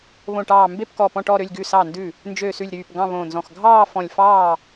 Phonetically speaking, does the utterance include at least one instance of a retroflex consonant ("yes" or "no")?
yes